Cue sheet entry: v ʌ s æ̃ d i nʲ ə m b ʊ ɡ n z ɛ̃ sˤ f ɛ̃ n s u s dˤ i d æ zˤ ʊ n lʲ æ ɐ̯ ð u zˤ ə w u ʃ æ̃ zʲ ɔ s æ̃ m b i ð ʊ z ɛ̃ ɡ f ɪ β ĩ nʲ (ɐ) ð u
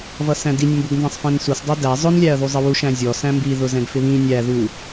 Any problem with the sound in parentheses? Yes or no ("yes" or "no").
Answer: yes